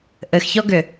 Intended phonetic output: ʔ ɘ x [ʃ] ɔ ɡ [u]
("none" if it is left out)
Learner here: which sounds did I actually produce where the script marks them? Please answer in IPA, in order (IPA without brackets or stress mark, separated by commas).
ç, ʏ